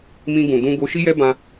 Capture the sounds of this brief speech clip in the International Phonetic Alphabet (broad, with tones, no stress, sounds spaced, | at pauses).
m ĩ˧ ɡ ũ˨ d ũ˧ ɡ o˧ ʃ i˦ j ɛ˦ b ã˧